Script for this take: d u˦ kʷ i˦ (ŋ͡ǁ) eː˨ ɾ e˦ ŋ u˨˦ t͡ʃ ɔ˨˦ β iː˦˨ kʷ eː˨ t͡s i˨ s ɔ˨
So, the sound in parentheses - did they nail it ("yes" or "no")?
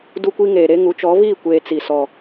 no